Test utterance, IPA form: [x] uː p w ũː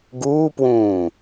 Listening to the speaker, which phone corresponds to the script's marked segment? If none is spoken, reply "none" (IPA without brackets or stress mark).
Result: ɡ